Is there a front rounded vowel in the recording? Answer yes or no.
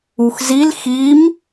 no